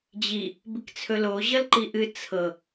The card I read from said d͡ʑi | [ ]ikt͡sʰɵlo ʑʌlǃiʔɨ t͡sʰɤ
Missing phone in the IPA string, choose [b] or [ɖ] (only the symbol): b